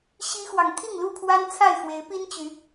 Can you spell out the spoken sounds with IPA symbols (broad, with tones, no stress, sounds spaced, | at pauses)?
ɕ i˦ x w ɑ˨ ŋ t̪ʰ i˥˨ ŋ l u˥˨ pʰ w a˦ n t͡sʰ a˥˨ ɪ̯ x w e˨˦ ɪ̯ p i˦ n t͡ɕ y˨˦